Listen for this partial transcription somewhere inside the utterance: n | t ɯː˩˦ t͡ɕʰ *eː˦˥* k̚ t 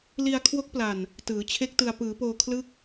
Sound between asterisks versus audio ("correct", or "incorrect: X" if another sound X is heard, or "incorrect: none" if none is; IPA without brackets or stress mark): incorrect: e˦˥